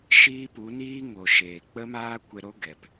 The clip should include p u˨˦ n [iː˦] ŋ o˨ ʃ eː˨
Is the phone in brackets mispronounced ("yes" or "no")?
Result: no